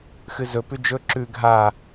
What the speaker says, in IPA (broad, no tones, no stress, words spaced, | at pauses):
xɨzɵ pʉd͡ʒɵ ǁʉ ɡʱa